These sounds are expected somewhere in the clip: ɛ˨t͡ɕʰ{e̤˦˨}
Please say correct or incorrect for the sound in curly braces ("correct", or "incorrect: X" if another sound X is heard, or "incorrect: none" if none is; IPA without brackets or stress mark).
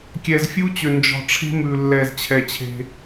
incorrect: e̤˦